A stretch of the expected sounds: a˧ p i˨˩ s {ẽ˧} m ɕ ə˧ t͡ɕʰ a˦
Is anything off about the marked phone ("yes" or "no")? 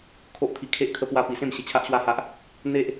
yes